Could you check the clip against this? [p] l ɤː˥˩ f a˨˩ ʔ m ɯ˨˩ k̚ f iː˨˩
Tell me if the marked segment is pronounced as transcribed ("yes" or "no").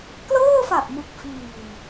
no